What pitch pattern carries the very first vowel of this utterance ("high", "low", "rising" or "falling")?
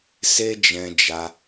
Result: high